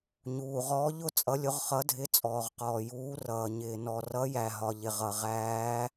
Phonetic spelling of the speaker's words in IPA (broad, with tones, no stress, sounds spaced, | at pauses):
ɲ uː˨ ʁ ɔː˧˥ ʎ ʊ˧˥ t͡sʼ ʌ˧˥ lʲ ʊ˧˥ ʁ χ ʌ˧˥ dʱ ɪ˧˥ t͡sʼ ɔː˨ ʁ q ɔː˨ j uː˧˥ r ʌː˨ ɲ ɪː˨ n ɔ˨ r ʌ˧˥ j æ˨ ɦ ɒ˨ ʎ ɪ˨ ʁ ʌ˨ ʁ æː˧˥